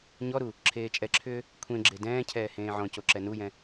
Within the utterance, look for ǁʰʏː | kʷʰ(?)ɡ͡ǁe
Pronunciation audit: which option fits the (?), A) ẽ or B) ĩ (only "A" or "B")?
A